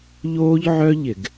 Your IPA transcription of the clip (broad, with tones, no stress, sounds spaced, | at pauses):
ʎ oː˥ ʎ ʕ œ˥ ʎ ɪ˧˩˧ ɡ